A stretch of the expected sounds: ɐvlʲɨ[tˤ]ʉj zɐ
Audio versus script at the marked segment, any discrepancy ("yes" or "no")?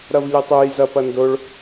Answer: no